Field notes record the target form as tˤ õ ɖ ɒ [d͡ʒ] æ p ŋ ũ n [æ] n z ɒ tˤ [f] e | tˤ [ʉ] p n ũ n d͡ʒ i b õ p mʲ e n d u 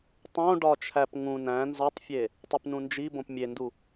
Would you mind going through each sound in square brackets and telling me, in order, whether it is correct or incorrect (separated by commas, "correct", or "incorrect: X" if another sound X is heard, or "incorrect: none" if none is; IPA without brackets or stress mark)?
incorrect: t͡ʃʰ, incorrect: æ̃, incorrect: fʲ, incorrect: u